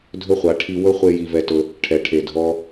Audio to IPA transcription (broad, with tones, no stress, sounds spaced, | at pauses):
dʱ ɵ˦ χʷ a˨˦ ʈʰ i˧ w ɵ˦ χʷ e˦ j i˧ v ɛ˧ t ɵ˧ | ʈʰ ɛ˨ ʈʰ e˨ dʱ ɔ˧